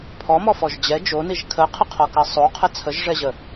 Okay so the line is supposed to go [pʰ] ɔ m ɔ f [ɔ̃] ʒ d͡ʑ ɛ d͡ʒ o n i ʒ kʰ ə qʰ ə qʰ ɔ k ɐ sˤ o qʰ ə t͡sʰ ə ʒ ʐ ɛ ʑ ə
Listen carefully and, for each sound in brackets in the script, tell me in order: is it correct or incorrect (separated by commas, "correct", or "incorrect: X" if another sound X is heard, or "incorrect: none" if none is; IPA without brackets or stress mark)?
correct, incorrect: ɔ